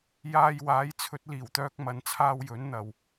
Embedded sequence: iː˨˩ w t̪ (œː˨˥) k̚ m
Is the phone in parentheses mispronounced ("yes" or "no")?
yes